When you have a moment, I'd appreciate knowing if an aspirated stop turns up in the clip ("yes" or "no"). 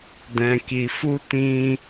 no